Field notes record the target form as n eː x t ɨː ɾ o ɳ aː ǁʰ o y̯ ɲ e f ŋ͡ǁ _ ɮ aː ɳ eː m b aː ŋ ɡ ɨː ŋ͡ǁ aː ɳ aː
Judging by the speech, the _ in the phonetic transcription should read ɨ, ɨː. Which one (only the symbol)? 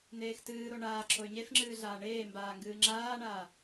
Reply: ɨː